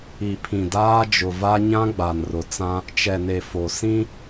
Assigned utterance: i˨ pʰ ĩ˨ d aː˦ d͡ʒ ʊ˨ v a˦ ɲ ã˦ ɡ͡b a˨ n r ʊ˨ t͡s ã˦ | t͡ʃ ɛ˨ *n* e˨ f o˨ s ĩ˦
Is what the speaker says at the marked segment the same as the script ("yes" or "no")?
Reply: yes